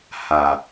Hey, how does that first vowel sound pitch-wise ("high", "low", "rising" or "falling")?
low